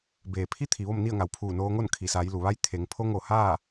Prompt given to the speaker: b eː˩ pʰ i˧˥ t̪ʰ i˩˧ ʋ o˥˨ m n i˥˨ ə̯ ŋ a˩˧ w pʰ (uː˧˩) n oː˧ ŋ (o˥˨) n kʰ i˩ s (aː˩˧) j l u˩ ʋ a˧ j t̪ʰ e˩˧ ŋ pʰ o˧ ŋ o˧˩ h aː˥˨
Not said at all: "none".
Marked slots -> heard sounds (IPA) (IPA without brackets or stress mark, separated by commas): uː˧˩, o˥˨, aː˩˧